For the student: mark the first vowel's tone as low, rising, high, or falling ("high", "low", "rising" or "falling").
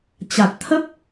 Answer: low